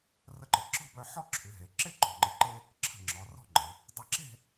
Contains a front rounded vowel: yes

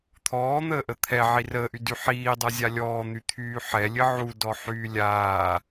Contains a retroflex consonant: no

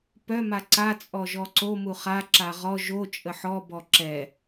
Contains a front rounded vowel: yes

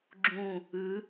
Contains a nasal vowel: yes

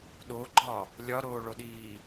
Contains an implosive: yes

